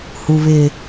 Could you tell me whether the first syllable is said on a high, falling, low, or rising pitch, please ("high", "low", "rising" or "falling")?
low